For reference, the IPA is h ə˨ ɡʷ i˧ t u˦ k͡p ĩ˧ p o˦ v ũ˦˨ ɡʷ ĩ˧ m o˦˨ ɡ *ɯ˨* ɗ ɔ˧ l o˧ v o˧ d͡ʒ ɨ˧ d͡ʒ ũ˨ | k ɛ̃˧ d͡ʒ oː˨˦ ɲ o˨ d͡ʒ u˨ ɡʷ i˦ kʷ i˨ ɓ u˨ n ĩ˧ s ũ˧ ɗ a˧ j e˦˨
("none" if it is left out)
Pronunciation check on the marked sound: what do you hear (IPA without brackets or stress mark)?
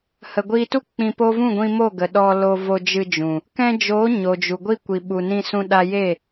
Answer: ə˨